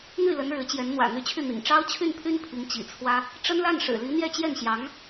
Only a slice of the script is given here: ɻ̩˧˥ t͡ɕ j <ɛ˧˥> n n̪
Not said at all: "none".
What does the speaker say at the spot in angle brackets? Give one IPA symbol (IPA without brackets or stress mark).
ɛ˧˥